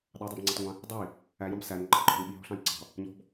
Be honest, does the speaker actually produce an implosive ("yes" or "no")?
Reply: yes